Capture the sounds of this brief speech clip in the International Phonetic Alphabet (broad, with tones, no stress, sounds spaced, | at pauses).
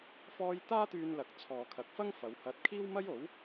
f ɔː˥ j t̪ aː˥ t̪ yː˧ n l ɐ˨ k̚ t͡sʰ ɔː˨ kʰ ɐ˨ k̚ f ɐ˥ ŋ f ɐ˨˧ w h ɐ˧ t̚ kʰ iː˥ w m ɐ˥ j o˨˥ w